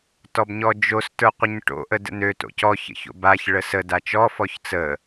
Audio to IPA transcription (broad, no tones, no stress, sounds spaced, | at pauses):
t ɔ b ɲ ɔ d͡ʒ o s t ə˞ qʷ ə ɲ ʈ o̰ ʔ ə d ə̰ n ø t o̰ c ɔ ç ə̰ ç o̰ b a ç ɭ ə s ə d a t͡ʃ ɔ f ɔ ç t͡s ə